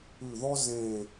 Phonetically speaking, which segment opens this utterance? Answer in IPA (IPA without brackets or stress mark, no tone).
ʉ